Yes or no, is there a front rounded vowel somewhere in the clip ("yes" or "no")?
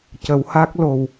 no